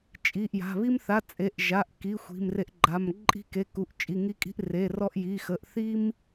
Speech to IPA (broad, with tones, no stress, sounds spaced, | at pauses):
t͡ʃʼ i˩˧˩ ʔ j a̤˩˧˩ β i˧ m θ a˩˧˩ t͡sʼ e˩˧˩ ʔ ʒ a˩˧˩ ʔ k i˩˧˩ xʷ i̤˩˧˩ m r e˧ ʔ ɡ͡ǃ a˩˧˩ m ǃʼ i̤˧ k e˩˧˩ k u˩˧˩ ʔ t͡ʃʼ i˩˧˩ ŋ i˧ kʼ i̤˧ ʔ r e˩˧˩ r ɔ˧ ʔ j i˩˧˩ x ə˩˧˩ ʔ θ i˧ m